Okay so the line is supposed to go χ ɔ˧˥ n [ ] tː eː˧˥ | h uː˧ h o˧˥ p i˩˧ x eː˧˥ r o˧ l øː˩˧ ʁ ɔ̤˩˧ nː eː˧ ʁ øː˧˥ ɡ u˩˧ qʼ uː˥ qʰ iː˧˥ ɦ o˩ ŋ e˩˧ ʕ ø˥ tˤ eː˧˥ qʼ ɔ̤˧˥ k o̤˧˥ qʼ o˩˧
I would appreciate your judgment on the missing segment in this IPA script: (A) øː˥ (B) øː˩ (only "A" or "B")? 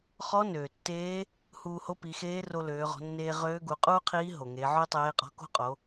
B